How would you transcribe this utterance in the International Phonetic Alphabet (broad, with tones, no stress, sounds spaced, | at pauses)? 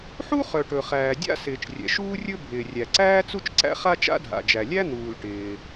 ħ u˥ χ œ˩ ʈ ɵ˩ χ æː˩ dʲ a̰˥ s ɪː˩ t͡ʃ rʲ ɛ̰˩ ʃ uː˥ rʲ ɵ˥ bʱ ɪː˩ rʲ æ˩ ǀ æː˥ t͡s u˥ t͡ʃ ǀ æ̰˥ χ a˥ t͡ʃ a̰˥ dʱ a̰˩ d͡ʒ æ˩ lʲ æ˥ n̪ uː˩ l ʈ ɪː˩